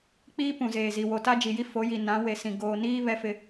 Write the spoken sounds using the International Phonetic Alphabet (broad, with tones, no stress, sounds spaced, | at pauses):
k͡p iː˦ p ũ˨ z eː˨ z i˨ w o˨ t a˦ d͡ʒ i˨ j i˦ f o˨˦ j i˨ n ã˨˦ w e˨ s ĩ˨ ɡ oː˨ n iː˦ β ɛ˦ f ɪ˦